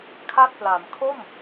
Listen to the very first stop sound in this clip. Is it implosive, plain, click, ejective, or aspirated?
aspirated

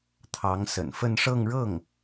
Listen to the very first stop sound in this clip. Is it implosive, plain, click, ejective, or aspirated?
aspirated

